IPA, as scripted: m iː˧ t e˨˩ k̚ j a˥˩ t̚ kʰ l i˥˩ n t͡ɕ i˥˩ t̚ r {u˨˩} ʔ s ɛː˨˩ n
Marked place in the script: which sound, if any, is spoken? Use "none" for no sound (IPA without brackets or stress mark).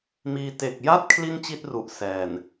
u˨˩